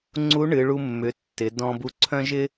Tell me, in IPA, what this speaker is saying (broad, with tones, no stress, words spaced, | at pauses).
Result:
ŋ͡ǀu˧˥ɳɨ˩˧ɭu˧mːʏ˩˧ tːɪ˩˧ dɔ̃˧bu˧ǀʰœ̃˥ʒɪ˥